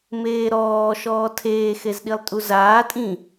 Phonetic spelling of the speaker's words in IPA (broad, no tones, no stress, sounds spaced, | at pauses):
m eː ɾ ɔː ʃ ɔː tʰ eː x e z ɗ i lˠ tʼ u z aː tʼ ĩ